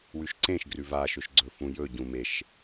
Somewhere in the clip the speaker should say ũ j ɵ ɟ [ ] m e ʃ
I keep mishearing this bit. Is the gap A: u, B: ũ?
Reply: B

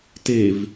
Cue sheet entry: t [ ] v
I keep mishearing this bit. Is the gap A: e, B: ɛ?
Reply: A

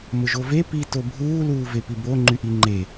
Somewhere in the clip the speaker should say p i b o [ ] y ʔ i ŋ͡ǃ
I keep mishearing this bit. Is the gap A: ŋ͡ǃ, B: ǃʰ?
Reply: A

